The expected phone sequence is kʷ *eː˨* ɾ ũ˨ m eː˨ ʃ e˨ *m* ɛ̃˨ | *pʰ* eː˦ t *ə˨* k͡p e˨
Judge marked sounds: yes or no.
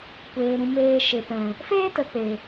yes, no, no, yes

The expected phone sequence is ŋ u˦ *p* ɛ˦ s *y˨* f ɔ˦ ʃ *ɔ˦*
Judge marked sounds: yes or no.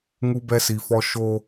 no, no, no

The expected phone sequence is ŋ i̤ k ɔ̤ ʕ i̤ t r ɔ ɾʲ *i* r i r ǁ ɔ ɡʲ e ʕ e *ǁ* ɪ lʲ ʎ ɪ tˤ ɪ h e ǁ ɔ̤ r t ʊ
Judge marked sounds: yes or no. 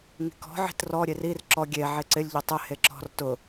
no, no

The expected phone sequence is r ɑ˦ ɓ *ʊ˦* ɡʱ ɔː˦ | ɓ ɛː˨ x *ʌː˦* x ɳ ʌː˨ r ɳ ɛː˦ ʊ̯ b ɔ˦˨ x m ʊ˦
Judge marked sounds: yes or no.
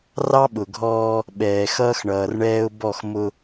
no, yes

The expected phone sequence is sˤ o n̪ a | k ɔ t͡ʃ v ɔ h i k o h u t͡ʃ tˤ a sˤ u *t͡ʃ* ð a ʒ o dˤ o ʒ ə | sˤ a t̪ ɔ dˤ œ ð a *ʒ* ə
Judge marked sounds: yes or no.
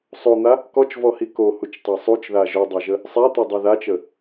yes, no

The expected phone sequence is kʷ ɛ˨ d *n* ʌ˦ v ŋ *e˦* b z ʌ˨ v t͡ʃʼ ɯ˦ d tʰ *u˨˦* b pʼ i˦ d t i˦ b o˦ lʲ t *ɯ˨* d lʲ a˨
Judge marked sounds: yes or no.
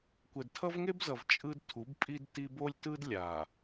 no, yes, yes, no

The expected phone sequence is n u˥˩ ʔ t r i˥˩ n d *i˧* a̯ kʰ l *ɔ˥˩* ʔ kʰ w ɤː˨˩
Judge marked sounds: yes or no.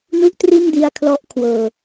yes, no

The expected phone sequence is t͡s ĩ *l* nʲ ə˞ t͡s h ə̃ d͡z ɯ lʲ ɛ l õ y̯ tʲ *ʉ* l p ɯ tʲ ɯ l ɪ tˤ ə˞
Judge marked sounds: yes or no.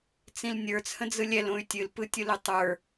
yes, no

